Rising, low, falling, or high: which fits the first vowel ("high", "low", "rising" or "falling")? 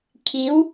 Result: rising